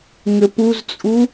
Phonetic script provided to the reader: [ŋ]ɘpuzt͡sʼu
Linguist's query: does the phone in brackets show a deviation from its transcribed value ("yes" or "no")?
no